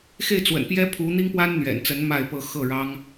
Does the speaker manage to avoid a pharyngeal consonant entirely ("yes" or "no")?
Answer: yes